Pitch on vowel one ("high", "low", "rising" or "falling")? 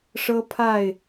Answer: high